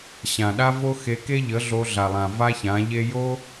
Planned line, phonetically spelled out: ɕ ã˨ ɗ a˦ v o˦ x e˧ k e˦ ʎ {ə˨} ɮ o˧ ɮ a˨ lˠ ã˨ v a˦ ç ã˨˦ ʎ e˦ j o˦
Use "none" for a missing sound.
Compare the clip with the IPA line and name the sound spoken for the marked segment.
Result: ə˨˦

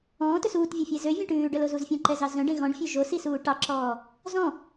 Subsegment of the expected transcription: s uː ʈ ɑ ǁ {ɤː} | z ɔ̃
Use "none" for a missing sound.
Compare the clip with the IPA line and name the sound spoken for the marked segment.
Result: ɔː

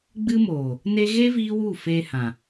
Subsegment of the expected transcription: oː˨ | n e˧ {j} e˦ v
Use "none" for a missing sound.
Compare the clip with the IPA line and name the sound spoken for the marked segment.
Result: ɣ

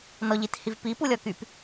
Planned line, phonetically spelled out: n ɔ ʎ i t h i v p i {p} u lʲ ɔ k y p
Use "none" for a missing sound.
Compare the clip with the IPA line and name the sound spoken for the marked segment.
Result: p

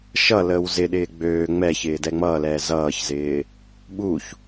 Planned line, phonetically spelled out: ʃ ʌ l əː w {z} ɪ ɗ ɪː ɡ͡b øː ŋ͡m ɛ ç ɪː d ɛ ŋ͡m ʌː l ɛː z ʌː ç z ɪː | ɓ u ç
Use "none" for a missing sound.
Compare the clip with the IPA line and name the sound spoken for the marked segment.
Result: z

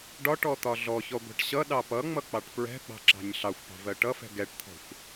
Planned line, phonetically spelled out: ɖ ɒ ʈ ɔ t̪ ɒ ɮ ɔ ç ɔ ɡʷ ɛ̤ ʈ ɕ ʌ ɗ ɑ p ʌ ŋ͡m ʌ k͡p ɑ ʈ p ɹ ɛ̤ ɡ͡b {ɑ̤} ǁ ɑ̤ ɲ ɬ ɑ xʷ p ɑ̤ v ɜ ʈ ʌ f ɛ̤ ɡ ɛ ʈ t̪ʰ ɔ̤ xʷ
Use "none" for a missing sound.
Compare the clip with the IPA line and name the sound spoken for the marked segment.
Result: ɑ̤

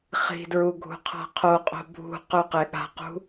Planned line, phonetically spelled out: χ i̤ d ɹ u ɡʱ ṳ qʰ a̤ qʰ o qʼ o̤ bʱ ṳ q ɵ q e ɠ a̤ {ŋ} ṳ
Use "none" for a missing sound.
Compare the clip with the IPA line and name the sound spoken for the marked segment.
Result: q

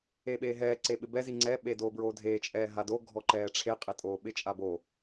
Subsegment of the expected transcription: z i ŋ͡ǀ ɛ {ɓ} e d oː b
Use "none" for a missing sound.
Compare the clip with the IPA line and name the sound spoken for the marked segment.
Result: ɓ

